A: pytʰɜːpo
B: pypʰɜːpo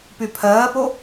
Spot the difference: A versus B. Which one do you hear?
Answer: B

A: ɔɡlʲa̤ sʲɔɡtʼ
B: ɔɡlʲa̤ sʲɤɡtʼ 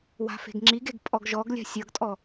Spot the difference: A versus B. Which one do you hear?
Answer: B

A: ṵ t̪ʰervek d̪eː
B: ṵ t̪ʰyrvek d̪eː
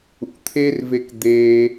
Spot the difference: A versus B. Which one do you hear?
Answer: A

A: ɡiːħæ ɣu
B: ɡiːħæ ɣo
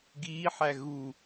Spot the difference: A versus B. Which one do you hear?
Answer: A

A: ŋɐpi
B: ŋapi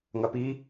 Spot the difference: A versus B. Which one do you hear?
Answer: A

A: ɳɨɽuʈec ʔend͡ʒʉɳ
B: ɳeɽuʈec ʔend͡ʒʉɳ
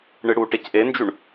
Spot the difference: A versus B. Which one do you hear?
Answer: A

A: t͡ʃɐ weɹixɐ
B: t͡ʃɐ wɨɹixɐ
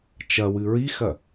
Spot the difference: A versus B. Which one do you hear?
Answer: B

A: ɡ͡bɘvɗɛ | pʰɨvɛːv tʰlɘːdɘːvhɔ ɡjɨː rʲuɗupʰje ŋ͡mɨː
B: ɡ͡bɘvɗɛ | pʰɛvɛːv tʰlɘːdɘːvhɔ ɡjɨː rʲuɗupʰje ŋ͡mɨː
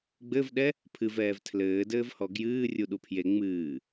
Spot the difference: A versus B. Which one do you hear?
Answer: A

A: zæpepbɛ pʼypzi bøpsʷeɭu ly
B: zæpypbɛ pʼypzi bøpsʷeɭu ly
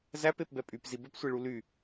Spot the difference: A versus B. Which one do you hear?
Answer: A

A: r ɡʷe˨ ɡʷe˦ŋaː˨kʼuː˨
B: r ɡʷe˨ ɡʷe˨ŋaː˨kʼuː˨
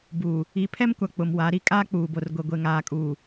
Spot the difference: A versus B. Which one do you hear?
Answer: B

